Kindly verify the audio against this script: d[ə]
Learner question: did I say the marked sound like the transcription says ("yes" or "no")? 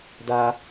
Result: no